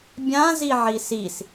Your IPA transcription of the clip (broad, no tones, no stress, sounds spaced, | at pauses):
bʲ ã z i ʕ i s i s